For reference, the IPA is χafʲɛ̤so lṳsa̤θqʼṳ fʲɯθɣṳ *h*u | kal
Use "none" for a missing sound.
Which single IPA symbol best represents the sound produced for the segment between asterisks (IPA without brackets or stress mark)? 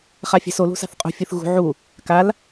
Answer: ʕ